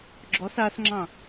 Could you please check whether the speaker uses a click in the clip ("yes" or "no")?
yes